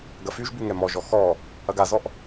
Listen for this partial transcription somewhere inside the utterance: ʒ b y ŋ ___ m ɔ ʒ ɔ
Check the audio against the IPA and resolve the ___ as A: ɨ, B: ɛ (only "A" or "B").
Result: B